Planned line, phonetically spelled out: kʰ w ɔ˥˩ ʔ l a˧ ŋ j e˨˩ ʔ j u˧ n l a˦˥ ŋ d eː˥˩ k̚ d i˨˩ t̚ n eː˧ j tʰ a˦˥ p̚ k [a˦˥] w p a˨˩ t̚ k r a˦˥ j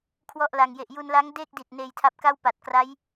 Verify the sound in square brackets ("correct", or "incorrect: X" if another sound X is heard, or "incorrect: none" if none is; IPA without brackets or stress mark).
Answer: incorrect: a˥˩